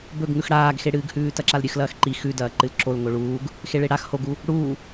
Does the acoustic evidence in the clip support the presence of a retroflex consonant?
yes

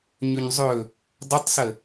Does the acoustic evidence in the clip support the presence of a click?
no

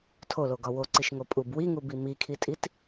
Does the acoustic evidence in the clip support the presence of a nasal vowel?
no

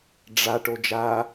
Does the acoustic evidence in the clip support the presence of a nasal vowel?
no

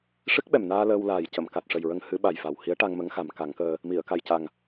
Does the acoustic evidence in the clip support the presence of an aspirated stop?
no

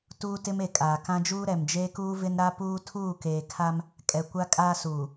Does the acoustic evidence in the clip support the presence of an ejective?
yes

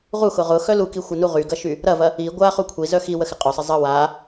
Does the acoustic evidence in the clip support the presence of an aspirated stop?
yes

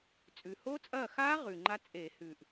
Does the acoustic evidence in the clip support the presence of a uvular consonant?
yes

